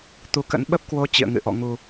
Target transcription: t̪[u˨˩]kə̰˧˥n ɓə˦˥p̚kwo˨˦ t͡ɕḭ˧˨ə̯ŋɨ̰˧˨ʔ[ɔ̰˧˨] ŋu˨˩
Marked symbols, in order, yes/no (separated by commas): no, yes